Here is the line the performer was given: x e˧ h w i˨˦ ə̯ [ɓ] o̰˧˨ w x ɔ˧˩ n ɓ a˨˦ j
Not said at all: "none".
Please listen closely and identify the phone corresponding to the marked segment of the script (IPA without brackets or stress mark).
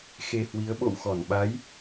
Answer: ɓ